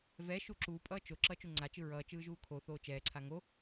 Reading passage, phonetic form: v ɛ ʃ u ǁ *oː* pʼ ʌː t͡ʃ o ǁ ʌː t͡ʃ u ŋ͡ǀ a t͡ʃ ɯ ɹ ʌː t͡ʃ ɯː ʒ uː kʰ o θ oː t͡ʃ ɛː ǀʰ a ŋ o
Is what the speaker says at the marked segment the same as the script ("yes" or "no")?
no